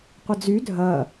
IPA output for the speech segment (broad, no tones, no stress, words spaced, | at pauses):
qʷəd͡zy dʱɐ